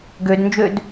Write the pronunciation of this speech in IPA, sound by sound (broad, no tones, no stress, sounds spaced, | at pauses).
ɡ ø d n d͡ʒ ø d